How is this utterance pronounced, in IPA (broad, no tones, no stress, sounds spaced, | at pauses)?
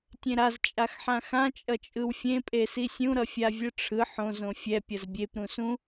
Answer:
tʲ ẽ ɾ a z t͡ʃʼ a x ħ ã x ã t͡ʃʼ ʌ t͡ʃʼ ɯ w fʲ ẽ pʼ e s i sʲ ũ ɾ ʌ fʲ a vʲ ɯ ʈ͡ʂʰ ɯ ħ õ z õ fʲ ɛ pʲ ʌ z bʲ e p ɾ ũ s ũ